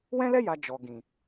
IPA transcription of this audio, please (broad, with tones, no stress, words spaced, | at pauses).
wɛ̃˦lɛ˦ ja˧ d͡ʒɔ˨ ɡĩ˨